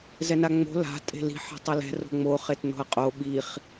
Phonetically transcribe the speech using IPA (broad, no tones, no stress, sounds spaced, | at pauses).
z ɛ n a ŋ͡m o̤ l a̤ tʼ e̤ l i̤ ħ ɛ̤ tˤ ʌ l ɛ̤ r o̤ ŋ͡m o χ e t n o̤ ɐ̯ qʼ o ɓ i χ